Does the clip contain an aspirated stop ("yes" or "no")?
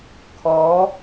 yes